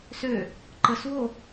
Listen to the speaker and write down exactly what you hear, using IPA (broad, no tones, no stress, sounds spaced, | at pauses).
s ø | ǃ ə s w o